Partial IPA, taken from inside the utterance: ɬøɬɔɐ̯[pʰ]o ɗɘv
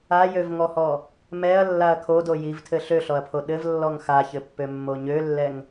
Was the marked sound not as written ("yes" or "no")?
no